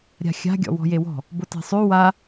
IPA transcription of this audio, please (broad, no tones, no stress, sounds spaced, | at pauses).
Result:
ɾʲ a̤ xʲ a̤ ɡʲ ɔ̰ w ɔ̤ j e w ɔ̤ | b ʊ t e̤ sˤ ʉ w a